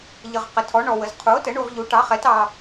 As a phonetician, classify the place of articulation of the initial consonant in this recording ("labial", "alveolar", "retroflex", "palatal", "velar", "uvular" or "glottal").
palatal